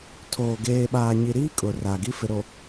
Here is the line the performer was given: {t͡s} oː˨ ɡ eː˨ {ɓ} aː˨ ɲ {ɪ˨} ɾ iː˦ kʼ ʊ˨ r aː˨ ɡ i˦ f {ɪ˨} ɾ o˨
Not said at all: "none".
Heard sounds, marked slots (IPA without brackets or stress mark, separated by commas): tʰ, ɓ, i˨, ɪ˨